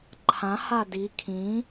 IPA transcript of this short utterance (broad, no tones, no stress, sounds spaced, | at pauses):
ǃʰ ã h a d i kʰ ĩ